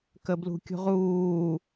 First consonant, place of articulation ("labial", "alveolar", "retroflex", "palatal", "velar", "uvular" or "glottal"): velar